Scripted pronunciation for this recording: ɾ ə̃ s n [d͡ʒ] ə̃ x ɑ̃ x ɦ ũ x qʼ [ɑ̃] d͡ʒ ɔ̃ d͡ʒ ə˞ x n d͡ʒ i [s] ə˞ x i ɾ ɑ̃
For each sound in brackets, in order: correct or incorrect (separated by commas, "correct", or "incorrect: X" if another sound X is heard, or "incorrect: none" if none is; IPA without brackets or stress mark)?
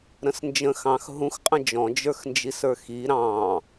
correct, incorrect: ə̃, correct